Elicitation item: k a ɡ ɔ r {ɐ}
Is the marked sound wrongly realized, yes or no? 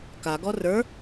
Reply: yes